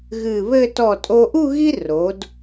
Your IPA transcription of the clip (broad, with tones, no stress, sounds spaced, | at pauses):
ɣ ɨ˧˩ β ɘ˥˧ t ɔ˧˩ tʼ o˧ ʔ u˥˧ ɣ i˥ r o˩˧ d